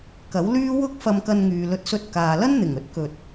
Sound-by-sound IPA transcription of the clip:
k ɐ˨˥ w l yː˥ w ʊ˥ k̚ f ɐ˧ m k ɐ˧ n ŋ yː˨ l ɵ˧ t̚ s ɵ˧ t̚ k aː˨ l ɐ˥ n n̪ ɪ˨˩ ŋ ɵ˨˥ t̚ k ɵ˨ t̚

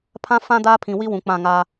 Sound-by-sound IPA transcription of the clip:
pʰ ã˦ f ã˦ d aː˦ pʰ ĩ˨ w i˦ w ũ˨ k͡p ã˦˨ ŋ aː˦

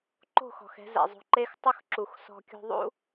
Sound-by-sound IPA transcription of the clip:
ǃ o̤˦˨ x ɔ̤˨ x ɛ̤˧ z ɛ̰˨ zˤ o̤˧ ǃ e˦ x tˤ ʊ˦ x ǁ u˨ x s ɔ̤˧ kʲ o̤˧ ðˤ ṵ˦

